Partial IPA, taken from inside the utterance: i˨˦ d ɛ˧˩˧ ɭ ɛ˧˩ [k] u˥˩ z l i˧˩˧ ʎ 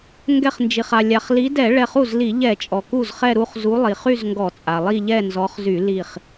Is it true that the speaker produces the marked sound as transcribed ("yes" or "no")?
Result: no